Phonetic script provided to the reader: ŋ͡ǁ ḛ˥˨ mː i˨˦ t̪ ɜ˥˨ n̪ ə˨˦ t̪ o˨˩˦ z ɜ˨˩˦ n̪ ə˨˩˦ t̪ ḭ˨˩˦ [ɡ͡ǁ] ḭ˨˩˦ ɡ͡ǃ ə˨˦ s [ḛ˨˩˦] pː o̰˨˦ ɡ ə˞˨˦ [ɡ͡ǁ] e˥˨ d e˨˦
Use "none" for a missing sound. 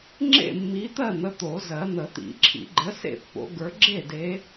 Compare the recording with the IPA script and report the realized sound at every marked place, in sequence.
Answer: ǁʰ, ḛ˥˨, ɡ͡ǁ

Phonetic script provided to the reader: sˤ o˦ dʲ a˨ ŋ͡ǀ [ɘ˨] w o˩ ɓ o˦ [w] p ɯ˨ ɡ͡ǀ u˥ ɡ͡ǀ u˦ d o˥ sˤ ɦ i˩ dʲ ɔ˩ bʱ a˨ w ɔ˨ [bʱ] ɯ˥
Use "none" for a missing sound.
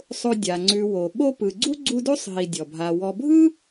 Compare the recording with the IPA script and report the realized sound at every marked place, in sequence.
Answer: ʉ˨, none, bʱ

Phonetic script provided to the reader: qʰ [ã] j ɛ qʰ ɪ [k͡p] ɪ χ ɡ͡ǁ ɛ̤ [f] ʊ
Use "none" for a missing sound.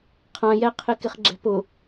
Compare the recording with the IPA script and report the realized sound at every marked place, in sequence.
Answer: ã, k, p

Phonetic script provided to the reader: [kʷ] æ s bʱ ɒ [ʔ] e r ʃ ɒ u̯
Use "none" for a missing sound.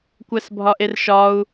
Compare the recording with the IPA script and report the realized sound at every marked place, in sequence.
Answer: kʷ, ʔ

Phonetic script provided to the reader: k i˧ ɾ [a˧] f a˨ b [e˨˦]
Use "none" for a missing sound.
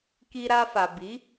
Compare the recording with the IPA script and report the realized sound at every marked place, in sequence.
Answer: a˧, i˨˦

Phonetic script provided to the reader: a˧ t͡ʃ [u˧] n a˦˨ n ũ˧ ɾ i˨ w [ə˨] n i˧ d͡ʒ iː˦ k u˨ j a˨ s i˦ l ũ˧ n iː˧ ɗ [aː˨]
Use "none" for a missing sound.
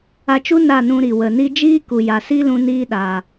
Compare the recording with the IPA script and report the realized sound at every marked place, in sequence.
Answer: u˦, ə˨, aː˨

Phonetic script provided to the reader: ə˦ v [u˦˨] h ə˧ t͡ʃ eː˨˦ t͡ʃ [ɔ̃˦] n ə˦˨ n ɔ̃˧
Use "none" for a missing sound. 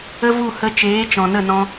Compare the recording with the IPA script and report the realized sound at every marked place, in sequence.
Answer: u˦˨, ɔ̃˨

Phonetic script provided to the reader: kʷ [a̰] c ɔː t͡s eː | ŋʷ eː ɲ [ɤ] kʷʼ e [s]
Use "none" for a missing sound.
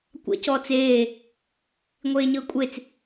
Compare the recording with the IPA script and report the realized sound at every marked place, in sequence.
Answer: a̰, ɤ, t͡s

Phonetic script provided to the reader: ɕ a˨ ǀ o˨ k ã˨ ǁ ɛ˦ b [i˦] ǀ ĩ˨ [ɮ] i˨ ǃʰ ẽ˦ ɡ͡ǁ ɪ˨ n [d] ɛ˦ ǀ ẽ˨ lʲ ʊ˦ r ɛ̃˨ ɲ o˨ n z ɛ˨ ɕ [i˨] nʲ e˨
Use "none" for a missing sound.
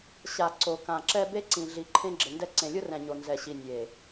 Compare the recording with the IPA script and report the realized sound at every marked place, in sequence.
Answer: e˦, ɮ, d, i˨

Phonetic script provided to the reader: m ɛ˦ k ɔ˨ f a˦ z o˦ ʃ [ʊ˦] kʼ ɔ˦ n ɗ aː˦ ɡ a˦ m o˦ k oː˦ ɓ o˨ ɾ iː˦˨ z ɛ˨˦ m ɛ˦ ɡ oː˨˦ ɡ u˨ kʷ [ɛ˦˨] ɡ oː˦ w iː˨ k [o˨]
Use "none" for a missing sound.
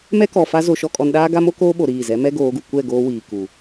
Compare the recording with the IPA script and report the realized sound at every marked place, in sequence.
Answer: ɔ˦, ɛ˦˨, u˨

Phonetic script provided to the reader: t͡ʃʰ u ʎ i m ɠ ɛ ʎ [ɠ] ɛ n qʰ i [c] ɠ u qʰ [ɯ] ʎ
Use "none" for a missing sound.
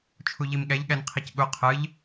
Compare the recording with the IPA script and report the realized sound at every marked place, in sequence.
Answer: ɠ, c, ɯ

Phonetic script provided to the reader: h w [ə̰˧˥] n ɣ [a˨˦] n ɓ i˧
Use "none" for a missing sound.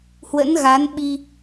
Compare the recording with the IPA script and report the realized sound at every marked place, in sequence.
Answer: ə̰˧˥, a˨˦

